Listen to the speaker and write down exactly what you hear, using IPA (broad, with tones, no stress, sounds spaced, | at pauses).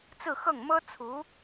t͡s ɹ̩˥˧ x ɤ˥˩ ŋ m ɤ˥ t͡sʰ u˧˥